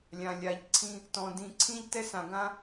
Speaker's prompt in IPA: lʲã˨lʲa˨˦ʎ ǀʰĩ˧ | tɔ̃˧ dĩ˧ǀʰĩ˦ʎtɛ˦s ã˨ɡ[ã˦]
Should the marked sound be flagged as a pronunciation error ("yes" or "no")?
no